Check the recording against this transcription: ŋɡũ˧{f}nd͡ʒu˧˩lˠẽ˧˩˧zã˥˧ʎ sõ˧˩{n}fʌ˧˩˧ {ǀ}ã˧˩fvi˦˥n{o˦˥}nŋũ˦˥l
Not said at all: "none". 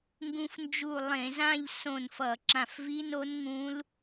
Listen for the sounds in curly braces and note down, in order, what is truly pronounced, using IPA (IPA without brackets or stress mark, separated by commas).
f, n, ǁ, o˦˥